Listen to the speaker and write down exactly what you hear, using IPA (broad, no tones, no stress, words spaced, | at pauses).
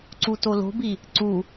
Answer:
ǀutolo̤bi | ǀu